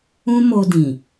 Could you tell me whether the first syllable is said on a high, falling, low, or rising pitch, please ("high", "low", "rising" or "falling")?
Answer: high